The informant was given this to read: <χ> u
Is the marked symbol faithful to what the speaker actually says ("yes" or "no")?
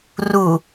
no